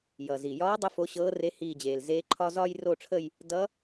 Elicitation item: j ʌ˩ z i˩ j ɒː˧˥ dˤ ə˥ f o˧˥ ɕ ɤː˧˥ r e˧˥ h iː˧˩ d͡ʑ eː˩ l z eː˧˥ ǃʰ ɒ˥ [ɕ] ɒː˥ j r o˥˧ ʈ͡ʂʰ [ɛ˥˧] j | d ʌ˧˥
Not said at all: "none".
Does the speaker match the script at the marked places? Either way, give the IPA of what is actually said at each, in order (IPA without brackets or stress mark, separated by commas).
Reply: z, ə˥˧